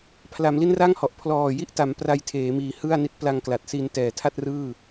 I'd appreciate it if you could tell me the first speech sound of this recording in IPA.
pʰ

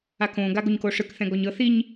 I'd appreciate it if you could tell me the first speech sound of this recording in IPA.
a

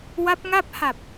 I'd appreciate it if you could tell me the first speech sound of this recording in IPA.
w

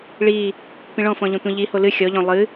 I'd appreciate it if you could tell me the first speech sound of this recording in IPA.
ɭ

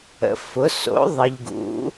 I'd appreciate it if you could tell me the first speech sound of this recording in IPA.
ə̰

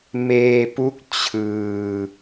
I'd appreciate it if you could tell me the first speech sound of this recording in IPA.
m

